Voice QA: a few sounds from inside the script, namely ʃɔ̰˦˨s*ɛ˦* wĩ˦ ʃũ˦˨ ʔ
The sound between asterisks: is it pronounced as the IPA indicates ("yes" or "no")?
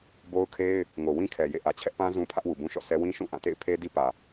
yes